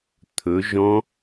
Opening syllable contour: rising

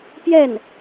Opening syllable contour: falling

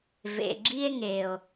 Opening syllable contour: low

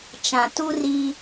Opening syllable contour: low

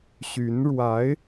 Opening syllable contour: rising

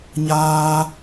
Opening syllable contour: high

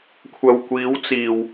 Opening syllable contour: low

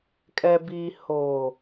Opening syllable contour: low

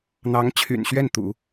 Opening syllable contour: rising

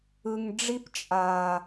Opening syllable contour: low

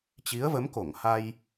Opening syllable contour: rising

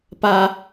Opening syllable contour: high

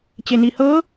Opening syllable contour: low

